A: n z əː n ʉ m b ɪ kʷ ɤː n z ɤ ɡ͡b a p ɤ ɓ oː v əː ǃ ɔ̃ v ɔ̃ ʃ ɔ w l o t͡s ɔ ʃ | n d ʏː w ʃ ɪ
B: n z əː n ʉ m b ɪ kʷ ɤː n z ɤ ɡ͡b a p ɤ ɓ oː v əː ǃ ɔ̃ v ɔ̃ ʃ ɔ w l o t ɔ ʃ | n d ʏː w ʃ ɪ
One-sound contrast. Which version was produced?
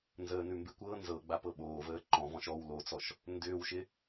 A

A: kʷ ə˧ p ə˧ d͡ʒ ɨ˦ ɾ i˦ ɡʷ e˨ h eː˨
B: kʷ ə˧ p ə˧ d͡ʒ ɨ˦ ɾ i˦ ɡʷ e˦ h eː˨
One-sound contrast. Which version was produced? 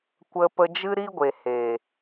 A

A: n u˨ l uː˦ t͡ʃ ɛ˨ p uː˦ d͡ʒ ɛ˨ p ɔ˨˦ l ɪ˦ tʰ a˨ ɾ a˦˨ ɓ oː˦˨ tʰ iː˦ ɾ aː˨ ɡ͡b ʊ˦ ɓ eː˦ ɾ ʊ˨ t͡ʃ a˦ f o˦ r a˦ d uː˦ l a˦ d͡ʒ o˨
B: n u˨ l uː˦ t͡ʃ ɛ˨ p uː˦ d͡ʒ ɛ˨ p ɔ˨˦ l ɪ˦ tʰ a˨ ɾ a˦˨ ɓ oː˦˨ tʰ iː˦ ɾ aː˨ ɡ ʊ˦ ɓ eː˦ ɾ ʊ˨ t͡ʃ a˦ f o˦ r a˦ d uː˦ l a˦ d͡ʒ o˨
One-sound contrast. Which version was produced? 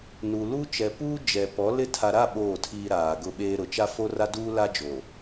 B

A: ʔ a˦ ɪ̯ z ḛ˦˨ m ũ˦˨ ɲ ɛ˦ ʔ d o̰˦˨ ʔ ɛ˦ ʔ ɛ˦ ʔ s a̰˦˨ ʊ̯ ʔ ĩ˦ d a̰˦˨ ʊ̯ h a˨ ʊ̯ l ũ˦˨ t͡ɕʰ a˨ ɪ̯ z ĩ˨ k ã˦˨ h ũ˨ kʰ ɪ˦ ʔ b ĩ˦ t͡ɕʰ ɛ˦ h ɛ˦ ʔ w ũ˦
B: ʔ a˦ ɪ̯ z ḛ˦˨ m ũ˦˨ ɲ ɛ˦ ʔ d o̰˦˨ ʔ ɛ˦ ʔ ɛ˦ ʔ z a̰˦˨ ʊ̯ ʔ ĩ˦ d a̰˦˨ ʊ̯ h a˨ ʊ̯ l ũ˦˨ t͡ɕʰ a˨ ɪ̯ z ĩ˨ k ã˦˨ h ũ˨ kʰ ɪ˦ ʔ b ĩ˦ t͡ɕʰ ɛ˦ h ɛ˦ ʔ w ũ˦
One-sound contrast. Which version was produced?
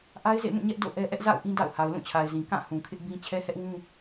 B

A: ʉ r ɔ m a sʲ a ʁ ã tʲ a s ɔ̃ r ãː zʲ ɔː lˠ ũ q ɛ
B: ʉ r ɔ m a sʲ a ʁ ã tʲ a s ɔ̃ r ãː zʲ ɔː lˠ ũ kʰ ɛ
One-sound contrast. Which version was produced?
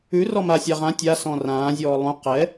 A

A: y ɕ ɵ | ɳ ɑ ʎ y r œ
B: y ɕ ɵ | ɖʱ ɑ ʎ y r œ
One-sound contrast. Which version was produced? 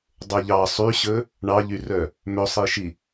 A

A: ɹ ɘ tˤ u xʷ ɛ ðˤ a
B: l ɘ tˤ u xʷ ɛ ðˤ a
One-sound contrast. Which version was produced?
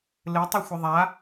B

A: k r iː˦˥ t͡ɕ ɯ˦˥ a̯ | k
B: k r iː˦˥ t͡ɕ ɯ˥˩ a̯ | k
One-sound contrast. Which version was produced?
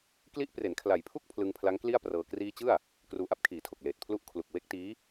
B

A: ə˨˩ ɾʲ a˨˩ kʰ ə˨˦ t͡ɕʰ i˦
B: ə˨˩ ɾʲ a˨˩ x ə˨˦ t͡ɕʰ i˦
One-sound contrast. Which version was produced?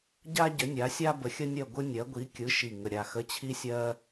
B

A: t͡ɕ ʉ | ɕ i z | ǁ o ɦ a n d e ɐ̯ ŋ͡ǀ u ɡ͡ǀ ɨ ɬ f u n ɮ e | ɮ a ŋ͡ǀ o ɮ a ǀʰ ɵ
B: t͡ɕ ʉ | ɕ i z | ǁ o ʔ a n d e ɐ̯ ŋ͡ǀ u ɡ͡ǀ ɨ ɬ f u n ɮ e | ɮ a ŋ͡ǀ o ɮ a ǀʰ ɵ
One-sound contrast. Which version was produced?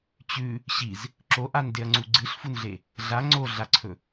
B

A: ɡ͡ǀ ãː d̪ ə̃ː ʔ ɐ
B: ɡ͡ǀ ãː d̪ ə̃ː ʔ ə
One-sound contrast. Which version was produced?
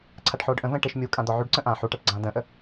B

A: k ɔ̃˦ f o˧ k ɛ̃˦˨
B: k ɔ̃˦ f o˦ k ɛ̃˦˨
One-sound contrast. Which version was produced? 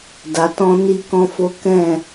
B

